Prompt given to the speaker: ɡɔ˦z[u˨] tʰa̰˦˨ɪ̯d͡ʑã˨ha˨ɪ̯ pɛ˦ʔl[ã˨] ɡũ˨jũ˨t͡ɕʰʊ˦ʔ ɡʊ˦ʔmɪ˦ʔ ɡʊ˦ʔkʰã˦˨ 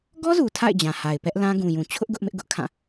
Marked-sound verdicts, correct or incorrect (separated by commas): correct, incorrect